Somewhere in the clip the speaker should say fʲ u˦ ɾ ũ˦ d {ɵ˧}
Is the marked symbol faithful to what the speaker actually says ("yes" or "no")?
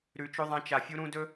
no